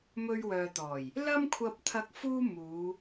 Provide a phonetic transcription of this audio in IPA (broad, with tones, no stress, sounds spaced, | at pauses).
m ɵ˧ ɥ w œː˨ t̪ ɔː˨˩ j | l ɐ˥ m kʷʰ ɐ˧ p̚ t̪ʰ ɐ˧ k̚ f uː˥ m uː˨˧